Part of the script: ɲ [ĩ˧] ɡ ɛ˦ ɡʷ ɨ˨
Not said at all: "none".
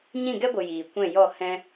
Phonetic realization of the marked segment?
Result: ĩ˦˨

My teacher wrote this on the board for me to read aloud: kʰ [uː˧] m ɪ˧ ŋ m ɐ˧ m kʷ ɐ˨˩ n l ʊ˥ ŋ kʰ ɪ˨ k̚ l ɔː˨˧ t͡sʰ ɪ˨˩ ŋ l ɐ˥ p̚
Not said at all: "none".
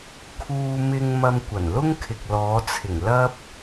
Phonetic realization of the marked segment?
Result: uː˧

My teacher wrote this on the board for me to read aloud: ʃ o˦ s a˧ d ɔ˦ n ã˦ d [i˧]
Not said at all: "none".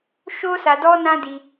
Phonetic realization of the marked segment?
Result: i˧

